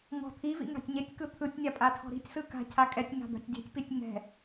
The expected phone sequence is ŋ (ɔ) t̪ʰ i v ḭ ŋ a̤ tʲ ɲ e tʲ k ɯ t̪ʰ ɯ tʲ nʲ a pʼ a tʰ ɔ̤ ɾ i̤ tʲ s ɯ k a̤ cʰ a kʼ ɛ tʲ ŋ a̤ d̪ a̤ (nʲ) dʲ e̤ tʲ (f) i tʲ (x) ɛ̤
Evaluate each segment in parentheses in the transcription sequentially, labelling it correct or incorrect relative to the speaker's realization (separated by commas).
incorrect, incorrect, incorrect, incorrect